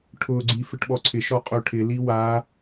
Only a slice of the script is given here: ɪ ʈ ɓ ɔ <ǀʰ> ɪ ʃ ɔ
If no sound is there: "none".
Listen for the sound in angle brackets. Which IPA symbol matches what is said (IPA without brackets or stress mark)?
ǀʰ